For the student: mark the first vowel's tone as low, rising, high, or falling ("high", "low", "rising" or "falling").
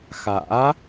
rising